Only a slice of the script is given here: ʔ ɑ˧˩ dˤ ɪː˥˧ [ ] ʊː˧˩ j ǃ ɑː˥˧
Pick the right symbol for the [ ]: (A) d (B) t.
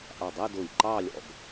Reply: A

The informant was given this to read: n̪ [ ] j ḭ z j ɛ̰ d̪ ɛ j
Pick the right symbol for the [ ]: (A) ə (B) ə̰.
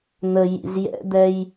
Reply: A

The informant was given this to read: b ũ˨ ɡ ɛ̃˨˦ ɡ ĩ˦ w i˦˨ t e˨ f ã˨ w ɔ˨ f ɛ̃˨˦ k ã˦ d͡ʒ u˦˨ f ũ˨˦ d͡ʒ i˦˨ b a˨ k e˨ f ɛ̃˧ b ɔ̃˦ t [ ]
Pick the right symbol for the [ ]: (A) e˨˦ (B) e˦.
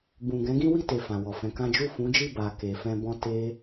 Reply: B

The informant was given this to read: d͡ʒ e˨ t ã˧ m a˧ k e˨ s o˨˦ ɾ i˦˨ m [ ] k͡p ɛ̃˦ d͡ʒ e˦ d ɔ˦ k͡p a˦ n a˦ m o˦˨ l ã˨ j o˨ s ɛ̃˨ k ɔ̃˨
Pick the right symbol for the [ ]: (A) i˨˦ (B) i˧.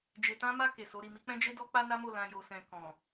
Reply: A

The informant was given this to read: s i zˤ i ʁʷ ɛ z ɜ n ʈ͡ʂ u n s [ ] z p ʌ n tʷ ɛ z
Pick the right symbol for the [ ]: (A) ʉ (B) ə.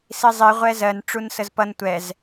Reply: B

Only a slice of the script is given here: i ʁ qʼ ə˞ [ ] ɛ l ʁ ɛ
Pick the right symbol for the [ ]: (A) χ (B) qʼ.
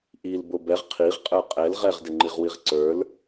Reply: B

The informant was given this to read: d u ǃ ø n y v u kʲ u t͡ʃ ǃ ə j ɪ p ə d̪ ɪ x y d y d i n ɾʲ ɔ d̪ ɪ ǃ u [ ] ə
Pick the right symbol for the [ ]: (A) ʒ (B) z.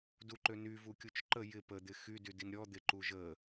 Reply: A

